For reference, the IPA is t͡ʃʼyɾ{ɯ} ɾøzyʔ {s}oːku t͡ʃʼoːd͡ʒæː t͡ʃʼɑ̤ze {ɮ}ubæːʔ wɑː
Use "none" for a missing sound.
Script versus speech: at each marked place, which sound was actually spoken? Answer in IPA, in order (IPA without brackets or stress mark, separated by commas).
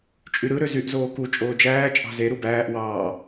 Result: ɯ, z, ɾ